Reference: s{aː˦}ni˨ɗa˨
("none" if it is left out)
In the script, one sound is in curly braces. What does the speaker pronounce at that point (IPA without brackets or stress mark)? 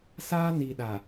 aː˦